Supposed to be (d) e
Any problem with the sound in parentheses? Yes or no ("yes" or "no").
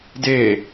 no